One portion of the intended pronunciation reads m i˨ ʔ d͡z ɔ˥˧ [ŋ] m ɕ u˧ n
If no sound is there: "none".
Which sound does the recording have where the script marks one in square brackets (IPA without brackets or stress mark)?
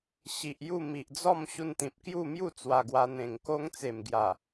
none